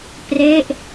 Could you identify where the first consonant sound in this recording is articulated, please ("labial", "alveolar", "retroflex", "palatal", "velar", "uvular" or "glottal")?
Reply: labial